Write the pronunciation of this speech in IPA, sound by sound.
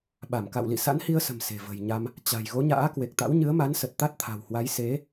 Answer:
ɓ a˧˩ m k a̰˧˨ w l ḭ˧˨ s a̰˧˥ n h i˧ ə̯ s ə̤˨˩ m s e̤˨˩ v ə̤˨˩ j ɲ a˧ m | t͡ɕ a̤˨˩ j ɣ o˨˦ ɲ a̰ː˧˥ k w e˨˩ k̚ t̪ a̰˧˥ w ɲ ɨ˨˦ ə̯ m a˨˦ n s ə˨˩ t̚ t̪ a˦˥ t̚ t̪ʰ a̤˨˩ w h w a˨˦ j s e˨˦

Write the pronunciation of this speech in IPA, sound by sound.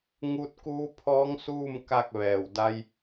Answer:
ŋ u˧ t̚ k uː˧˥ pʰ ɔː˧˥ ŋ s uː˥˨ m k a˥˨ k̚ ʋ ɛː˧˩ w d a˧ j

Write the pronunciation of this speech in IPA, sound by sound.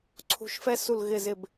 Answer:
ǀʰ ṳ˩˧ ʃ f ɛ˧ s u˧˩ l ɣ ɪ˧˩ z ɪ˧˩ b

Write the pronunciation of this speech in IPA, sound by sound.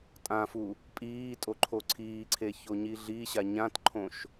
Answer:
tʼ ã f u | pʼ iː tʼ o ǃʰ o ǀʰ iː ǀʰ e ç o ɲ i ɮ i ɕ a ɲ ã t ǃʰ õ ʃ

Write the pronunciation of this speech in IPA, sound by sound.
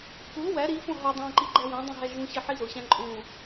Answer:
k u w æ ɾ i f õ ɦ o dˤ æ̃ ǃ i ɡ͡ǃ æ w æ̃ dˤ ẽ ɦ æ ʒ ũ ɕ i ħ i z o ɕ æ̃ ǃʼ ũ

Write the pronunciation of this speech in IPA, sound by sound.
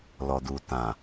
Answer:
l ɔ˨ d u˨ t ã˨

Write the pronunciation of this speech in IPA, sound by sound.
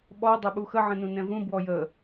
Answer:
ɓ ɔ dˤ ɵ ɓ u x ə ʕ ə̃ n ũ n ɛ̃ v ũ b w ɔ j ə

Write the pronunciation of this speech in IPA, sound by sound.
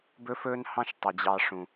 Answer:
b ɵ˦ f ɵː˦ n h ɑ̃˦ ʃ tˤ i˨ d͡ʑ ɑ˧ ʂ ũ˨

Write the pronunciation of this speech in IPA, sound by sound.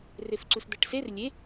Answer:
r e f ǀ u s d̪ æ ʈ s e r lʲ e

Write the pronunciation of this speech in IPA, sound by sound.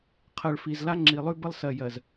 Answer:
qʰ ɜ˨ ɭ f i˨ z l a˦ ŋ͡ǁ i˨ lˠ ʉ˦ b ə˦ lˠ s ɜ˨ j ɜ˨ z

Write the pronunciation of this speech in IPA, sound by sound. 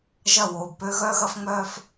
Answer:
ʒ ɐ˦˨ w oː˨ b p ø˦ ɣ œ˦ ɣ ɐ˦ f ŋ͡m œː˦ f

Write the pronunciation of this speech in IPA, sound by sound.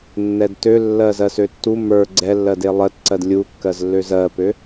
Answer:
nː ɛ d t ø lː ɜ z ɜ s ø tː u m ə˞ ɡ͡ǀ ɛ lː ɜ d e lˠ ɜ t ǀ ɜ d lʲ u kː ɜ z lː ø z ɜ p ø

